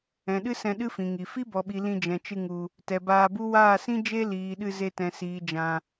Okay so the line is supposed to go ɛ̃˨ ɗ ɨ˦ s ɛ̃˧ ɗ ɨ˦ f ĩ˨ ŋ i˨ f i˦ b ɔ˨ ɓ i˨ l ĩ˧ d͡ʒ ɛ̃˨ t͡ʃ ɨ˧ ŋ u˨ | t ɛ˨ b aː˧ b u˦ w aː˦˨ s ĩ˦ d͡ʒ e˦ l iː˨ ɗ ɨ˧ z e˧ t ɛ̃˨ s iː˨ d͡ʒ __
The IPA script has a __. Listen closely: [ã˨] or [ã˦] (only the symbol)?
ã˨